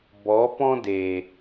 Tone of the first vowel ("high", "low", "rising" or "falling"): rising